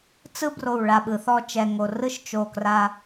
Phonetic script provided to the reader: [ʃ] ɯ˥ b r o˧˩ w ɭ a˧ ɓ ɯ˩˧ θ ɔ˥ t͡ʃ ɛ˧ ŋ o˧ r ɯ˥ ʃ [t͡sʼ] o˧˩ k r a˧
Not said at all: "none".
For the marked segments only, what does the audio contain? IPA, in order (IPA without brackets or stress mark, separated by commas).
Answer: t͡s, t͡ʃ